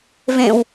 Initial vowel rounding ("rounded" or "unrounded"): unrounded